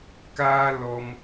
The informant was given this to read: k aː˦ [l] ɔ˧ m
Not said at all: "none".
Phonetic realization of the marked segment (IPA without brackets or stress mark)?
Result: l